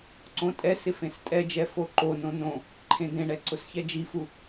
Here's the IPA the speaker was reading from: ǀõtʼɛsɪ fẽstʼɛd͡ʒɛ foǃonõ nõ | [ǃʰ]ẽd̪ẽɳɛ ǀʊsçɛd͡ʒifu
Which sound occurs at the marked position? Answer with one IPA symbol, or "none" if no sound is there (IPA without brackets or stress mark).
ǃʰ